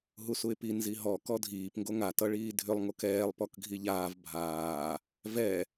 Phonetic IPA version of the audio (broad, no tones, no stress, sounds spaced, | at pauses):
ɦ u s u ɪ̯ p i n z i ɦ ɔ k ɔ dʱ iː p ŋ ɡ o ŋ a t ʌ ɭ iː dʱ ʏ lˠ ŋ o k ɛː lˠ p ɔ k ɡʱ i ʎ aː v bʱ aː | v ɛ